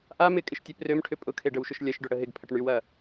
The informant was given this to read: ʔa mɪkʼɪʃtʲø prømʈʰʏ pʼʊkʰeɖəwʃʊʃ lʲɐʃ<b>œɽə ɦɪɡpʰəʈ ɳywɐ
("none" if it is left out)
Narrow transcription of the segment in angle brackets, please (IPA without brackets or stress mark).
ɖ